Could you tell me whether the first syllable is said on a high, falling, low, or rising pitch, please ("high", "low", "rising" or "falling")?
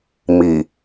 low